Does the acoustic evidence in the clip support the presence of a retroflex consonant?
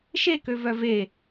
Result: no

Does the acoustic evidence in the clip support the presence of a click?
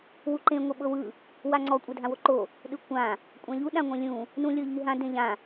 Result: yes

